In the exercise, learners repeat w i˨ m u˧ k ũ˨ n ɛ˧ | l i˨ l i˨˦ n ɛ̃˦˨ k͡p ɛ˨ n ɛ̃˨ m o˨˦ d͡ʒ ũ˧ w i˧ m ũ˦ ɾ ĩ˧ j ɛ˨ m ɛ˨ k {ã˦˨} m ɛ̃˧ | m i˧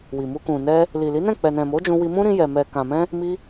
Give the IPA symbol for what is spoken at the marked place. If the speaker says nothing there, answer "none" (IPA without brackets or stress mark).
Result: ã˨